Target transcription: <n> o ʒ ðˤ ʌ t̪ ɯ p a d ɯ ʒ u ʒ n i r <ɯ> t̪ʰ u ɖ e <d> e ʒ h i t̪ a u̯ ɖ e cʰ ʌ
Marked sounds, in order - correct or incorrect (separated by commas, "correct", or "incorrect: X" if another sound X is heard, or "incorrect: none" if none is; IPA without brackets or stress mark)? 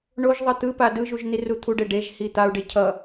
incorrect: ɳ, incorrect: u, incorrect: ɖ